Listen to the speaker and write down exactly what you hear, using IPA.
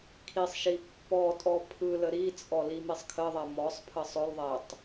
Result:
kʰ i sˤ ʃ i pː ɔ tʼ ɔ pʰ ɯ l ə ɾ i t͡sʼ ɔ l i m i sˤ kʰ ə ðˤ ɛ m ɔ sˤ pʰ ə sˤ ɵ l ðˤ ɛ tˤ

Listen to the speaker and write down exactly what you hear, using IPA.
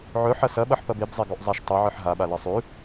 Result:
ʕ ɵ ħ ɐ s ɐ ɓ ɐ ħ p ɐ b e b zˤ e ɡ o ʔ zˤ a ʃ tˤ ɵ ʕ ɨ ħ ɦ a ɓ a l ɐ sˤ ʉ

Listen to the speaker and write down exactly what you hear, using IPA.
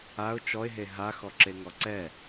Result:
a ʊ̯ t͡ʃ ɔ ɪ̯ ɦ e ɦ a x ɔ ǁ e ŋ ɔ ǀ ɛ

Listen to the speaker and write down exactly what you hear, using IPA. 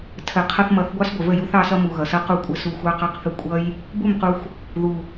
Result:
tʰ ə˨ qʰ ʌ˧ θ m ʌ˨˦ θ ɡʷ ɑ˦ s ɡʷ ə˨ v ə˦˨ j u˦ θ ɑ˦ s ʌ˦ m u˨ ɣ ʌ˨ s ʌ˦ q u˦ kʷʼ ə˦ s u˧ xʷ ɑ˦ q ɑ˦ q θ ə˦ kʷʼ ʌ˦ j | b u˦˨ m q u˧ xʷ | ð u˨

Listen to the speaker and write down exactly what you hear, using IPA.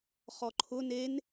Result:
χ ɔ ǃʰ ʊ n e n

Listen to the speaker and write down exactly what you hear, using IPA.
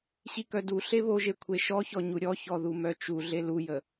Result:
ɕ i k œ d u ɬ e β o ʒ e kʷʰ e ʃ ɔ ç ɔ ɲ u ɾʲ ɔ ç ɔ ð u m œ t͡ʃ u ɮ e l u j ə

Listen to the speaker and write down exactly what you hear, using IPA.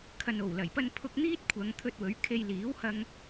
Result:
kʰ ɐ˨ n o˨˩ w l ɐ˨˩ j p ɐ˧ n pʰ ʊ˧ k̚ n̪ iː˥ t̚ kʷʰ ɐ˨˧ ŋ t̪ʰ ɵ˧ t̚ w ɵ˨˥ ɥ kʰ e˧ j l iː˨˥ w h ɐ˧ ŋ

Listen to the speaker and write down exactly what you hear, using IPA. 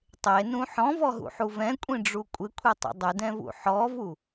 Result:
tˤ e n ũ ħ ɔ̃ v ɔ ɦ ṵ ħ u v ɛ̃ kʷʼ ĩ ɖ͡ʐ u kʷʼ ɪ kʷʰ e tˤ ṵ dˤ ɪ d ɛ̃ v ṵ ħ ɔ v u

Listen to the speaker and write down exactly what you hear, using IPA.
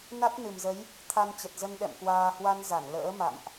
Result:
n a˦˥ t̚ n ɨ˨˩ m z ə˨˦ j | t̪ʰ a˧ n t͡ɕ ə˨˩ t̚ z ə˧ n ɗ ɛ̰˧˨ m k w aː˧ h w a˧ n z a˧˩ n l ə̰ː˧˥ m a̰˧˨ m ʔ

